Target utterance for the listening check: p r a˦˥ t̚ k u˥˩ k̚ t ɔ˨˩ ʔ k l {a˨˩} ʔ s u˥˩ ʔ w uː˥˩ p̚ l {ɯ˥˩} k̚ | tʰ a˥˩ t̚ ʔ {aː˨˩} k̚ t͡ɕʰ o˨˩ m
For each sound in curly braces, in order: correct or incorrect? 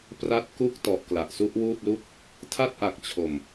correct, incorrect, incorrect

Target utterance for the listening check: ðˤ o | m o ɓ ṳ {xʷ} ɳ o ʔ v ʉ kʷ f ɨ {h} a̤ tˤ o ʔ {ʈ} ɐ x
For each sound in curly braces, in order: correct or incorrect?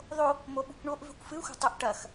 incorrect, incorrect, correct

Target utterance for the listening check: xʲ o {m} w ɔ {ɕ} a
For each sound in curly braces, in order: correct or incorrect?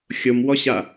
correct, correct

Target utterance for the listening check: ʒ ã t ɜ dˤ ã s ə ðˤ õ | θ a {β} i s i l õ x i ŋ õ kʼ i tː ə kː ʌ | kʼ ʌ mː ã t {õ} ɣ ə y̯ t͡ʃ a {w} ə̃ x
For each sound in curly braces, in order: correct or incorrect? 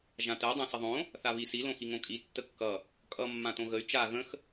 correct, correct, incorrect

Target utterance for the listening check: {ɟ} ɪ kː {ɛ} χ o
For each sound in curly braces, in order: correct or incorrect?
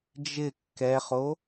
incorrect, correct

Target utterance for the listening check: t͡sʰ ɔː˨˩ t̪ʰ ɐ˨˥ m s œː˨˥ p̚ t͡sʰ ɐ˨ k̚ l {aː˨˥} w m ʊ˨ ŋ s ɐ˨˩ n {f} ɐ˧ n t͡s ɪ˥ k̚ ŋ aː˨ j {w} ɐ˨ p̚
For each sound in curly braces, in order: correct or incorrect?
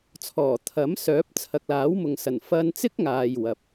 correct, correct, correct

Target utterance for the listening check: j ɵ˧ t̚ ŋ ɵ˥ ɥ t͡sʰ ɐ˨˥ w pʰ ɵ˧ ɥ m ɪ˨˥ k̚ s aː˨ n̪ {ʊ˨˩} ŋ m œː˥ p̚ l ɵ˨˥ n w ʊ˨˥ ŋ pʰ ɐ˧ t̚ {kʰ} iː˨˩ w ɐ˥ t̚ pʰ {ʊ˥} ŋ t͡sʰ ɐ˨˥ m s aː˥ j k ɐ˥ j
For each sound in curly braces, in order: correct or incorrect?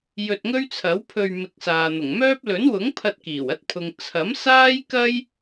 correct, incorrect, incorrect

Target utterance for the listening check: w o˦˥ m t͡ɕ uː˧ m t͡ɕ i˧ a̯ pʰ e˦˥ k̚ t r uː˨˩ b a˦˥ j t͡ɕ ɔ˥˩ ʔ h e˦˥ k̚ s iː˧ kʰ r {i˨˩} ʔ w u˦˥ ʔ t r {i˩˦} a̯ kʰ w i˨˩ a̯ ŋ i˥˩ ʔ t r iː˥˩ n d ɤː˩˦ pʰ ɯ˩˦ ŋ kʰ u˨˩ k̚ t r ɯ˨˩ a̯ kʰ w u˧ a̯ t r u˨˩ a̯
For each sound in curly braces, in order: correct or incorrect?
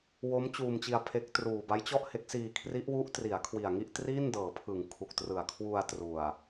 incorrect, correct

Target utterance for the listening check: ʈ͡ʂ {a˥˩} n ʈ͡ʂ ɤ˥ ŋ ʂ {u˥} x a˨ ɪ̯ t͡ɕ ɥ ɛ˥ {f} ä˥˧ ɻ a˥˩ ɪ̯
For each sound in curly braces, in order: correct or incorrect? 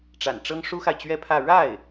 incorrect, correct, incorrect

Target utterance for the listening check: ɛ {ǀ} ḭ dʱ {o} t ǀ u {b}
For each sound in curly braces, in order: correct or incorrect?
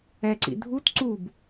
correct, incorrect, correct

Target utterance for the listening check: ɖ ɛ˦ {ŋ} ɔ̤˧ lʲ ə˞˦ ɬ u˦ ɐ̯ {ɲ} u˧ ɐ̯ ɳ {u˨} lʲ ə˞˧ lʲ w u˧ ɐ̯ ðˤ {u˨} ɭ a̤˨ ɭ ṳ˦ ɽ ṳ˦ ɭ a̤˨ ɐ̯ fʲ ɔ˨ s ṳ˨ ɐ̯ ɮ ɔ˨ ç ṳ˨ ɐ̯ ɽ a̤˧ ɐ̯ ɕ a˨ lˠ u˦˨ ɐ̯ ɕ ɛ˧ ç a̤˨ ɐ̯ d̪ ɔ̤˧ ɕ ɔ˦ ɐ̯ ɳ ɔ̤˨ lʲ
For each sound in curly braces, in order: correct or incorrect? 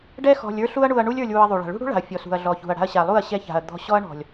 incorrect, incorrect, incorrect, correct

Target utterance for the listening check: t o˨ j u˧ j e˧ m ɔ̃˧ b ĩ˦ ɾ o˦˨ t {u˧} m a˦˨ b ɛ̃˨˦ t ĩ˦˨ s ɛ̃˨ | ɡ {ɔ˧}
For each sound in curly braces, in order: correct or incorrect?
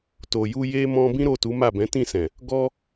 incorrect, correct

